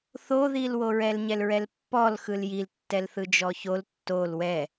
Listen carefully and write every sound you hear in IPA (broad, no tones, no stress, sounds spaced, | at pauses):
θ o ð i l w o ɹ ɛ l ɲ ɛ l ɹ ɛ l pː ɔ l x ɯ l j i l tː ɛ l θ ɯ d͡ʒ ɔ ç o l tː o l w ɛ